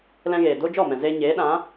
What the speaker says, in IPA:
l ɛ̃˧ ɣ eː˨ d o˧ d͡ʒ ɔ˦˨ m ɛ̃˨ z eː˧ ɲ eː˨˦ ɗ ã˨˦

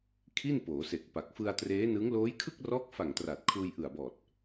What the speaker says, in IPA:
kʰ i˥˩ n p oː˩˦ s e˨˩ k̚ p a˨˩ k̚ f ɯ˧ a̯ t r eː˦˥ n ɯ˦˥ ŋ l oː˦˥ j kʰ ɯ˥˩ k̚ r ɔː˦˥ k̚ f a˨˩ ŋ t r a˨˩ t̚ kʰ uː˧ j ʔ ɯ˨˩ a̯ b ɔː˨˩ t̚

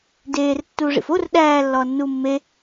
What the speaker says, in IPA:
d eː r tː uː ʐ ḭ f o r ɗ æː lː ɒː nː uː mː e

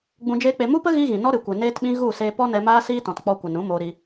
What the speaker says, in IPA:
ɡ͡b ũ˧ d͡ʒ eː˦ k͡p e˧ m u˦ p ə˦ ɣ iː˦ ɣ ĩ˨ n ɔ˦ ɾ ɨ˨ kʷ e˨ n eː˦ t ɓ ĩ˦ ɣ u˦˨ s eː˧ p ɔ˦ n ɛ˧ m aː˦ s iː˦ t ɔ̃˨ t k͡p ɔ˧ kʷ ə˨ n ũ˨˦ m oː˧ ɾ i˧

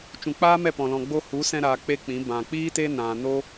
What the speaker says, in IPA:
t͡ʃ ũ˨ k͡p aː˦ m ɛ˦˨ p ɔ̃˨ l ɔ̃˧ ɡ͡b o˧ h u˨˦ s ɛ̃˧ ɾ aː˧ k͡p e˦ k͡p ĩ˨˦ b ã˨ k͡p iː˦ t e˦ n ã˧ n o˦

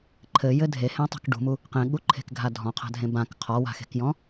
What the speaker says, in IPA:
ǃʰ ɘ j ɘ dʱ e h ẽ tˤ ṳ k ɖ ṳ m u | q ẽ ɠ u ǃʰ e̤ k ɡʱ a dʱ ɔ̃ qʰ a̤ dʱ ẽ b ã k qʰ ɔ w a̤ x e̤ k j ɔ̃

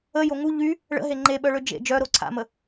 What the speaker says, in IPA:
ə j o ŋ u ʎ y | ɭ ə̰ ɦ e ŋ͡ǃ e ɓ œ ɭ ø d͡ʒ ḛ d͡ʒ œ ɾ o ǀʰ a̰ m ə

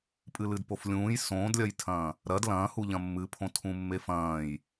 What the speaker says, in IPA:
pʼ ɨ l ɨ d p o f lʲ ũː j s õː d lʲ ɐ j tʰ ɐ̃ː | ɾ ɐ d l ɐ̃ː h u ʎ ɐ̃ mː ɨ pʰ õ tʰ ũ mː e f ɐ̃ː j

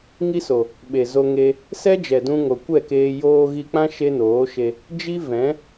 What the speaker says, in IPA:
ŋ i˦ s o˨ | ɓ e˨ z o˧ ŋ e˧ | s ɛ˦ d͡ʒ ɛ˨ d ũ˧ ŋ o˨ kʷ ɛ˦˨ k eː˧ j oː˧ ɣ i˧ k͡p ã˦ ʃ e˦ n oː˨˦ ʃ e˧ | d͡ʒ i˦ v ɛ̃˨˦

